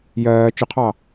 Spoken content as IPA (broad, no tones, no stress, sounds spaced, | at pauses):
j ɜː t͡ʃ ʊ qʰ ɑ